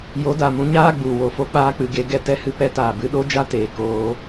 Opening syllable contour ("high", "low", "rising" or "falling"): rising